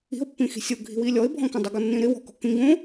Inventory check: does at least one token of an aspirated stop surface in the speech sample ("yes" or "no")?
no